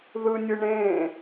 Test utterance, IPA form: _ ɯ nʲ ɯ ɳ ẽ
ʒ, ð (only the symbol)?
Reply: ð